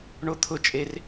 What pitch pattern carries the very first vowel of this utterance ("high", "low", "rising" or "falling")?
high